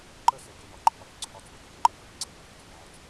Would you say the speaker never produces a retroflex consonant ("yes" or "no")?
yes